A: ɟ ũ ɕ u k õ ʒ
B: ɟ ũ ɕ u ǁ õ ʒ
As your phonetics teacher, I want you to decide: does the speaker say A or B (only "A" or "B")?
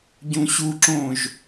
B